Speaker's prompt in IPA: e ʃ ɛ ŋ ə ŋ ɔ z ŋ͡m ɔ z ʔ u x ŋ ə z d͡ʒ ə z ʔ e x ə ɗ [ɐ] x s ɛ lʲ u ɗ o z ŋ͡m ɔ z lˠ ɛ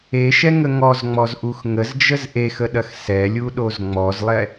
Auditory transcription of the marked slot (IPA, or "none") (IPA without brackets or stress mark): ɐ